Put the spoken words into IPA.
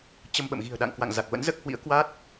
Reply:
t͡ɕ ə˧ m ɓ ə̰˧˨ m ɣ i̤˨˩ ə̯ ɗ a̰˧˨ ŋ k w a̰˧˨ ŋ z a˨˩ k̚ v ə̰˧˥ n z əː˦˥ k̚ h w ḭ˧˥ ə̯ k w a˦˥ t̚

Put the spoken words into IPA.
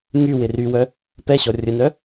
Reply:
ŋ y w ɪ r y w œ | p ɛ ɕ ɔ rʲ ə n œ

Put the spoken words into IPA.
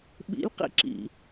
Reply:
ɓ ḭ lʲ q ḭ ǁ ḭ

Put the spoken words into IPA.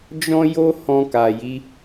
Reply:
d͡ʒ ɔ̃˧ j o˧ h ɔ̃˧ k a˨ j i˨˦

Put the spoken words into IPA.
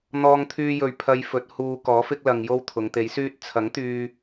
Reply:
n̪ ɔː˧ ŋ t̪ʰ yː˧ j ɵ˨ ɥ pʰ ɐ˧ j f ɵ˨˥ t̚ h uː˧ k ɔː˨˥ f ɪ˥ k̚ l ɐ˧ ŋ j o˥ w t̪ʰ ʊ˨˧ ŋ t̪ e˨˥ j s yː˥ t̚ t͡sʰ ɐ˨˥ ŋ t̪ yː˧

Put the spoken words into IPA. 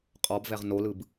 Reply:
qʼ ɔ b v ɛ ʁ n o l ɯ b

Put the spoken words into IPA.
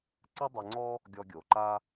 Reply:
ǀ ɨ˦ dˤ e˧ ŋ͡ǀ ɔ˦ | ɡʲ ɔ˧ ɡʲ o˨ ǃ a˦

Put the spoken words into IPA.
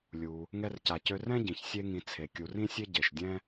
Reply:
lʲ u˩ | ŋ ɛ˦ r c a˨ c ø˦ r ɛ̃˥ ɟ ĩ˩ ç sʲ e˦ ŋ ĩ˨ t͡sʰ e˩ kʲ u˨ r ĩ˥ sʲ e˥ ɟ e˩ ʃ dʲ ɛ̃˥

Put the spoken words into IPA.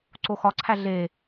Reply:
ǀ o x ɒ ǀʰ æ ɮ e

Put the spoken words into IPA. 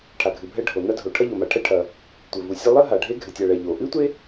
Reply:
ʈʰ a˩ ɡʱ ɨ˩ bʱ ɛ˧ ɖʱ o˩ n a˧ dʱ o˩ ʈʰ ɐ˧ ʎ o˩ m a˩ ʈʰ ɛ˧ ʈʰ ɐ˩ | tʷ ɘ˩ v u˩ sʲ ɘ˧ lˠ ɘ˥ ɦ a˩ ɖʱ e˧ ɡʱ ɘ˩ tʲ a˩ ɭ ɛ˩ ʎ o˩ ʔ ɨ˥ tʷ e˥

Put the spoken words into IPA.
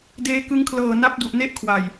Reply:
d eː˧ k ɯ˧ ŋ kʰ l ɤː˨˩ n a˦˥ p̚ d u˨˩ ʔ n e˥˩ ʔ kʰ w a˨˩ j

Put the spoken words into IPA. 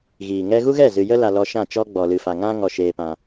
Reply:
ɣ iː˨ ŋ ɛ˧ ɣ u˦ ɣ ɛ˦˨ z ɨ˨ j ə˧ l a˨ l ɔ˧ ʃ ã˦˨ t͡ʃ ɔ˦ ɡ͡b ɔ˨ l ɨ˨ f a˨ ŋ ã˦ ŋ ɔ˧ ʃ eː˧ p ã˧

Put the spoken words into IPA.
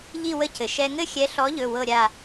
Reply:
ʎ i˦˨ w ə˦˨ c ɘ˩ ʃ ɛ˦ ŋ ɘ˦ xʲ ɛ˨˥ ɬ ɔ˨˥ ʎ ɵ˩˧˩ w ɤ˦˨ ɾʲ a˦˨

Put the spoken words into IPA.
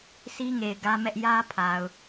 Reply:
sʰ i˦ ŋ e˨ ɪ̯ ɡ ä˦ m ɛ˦ ʔ j ä˦ pʰ a˨ ʊ̯

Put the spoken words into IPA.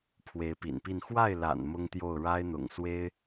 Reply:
pʰ w e˧˥ ɪ̯ p ḭ˨˩ n p i˥˧ n x w a˥˩ ɪ̯ l a̰˨˩ n m ʊ˥ ŋ t̪ j o˥˩ ʊ̯ ɻ a˥ ɪ̯ n̪ ʊ̰˨˩ ŋ s w e˥ ɪ̯

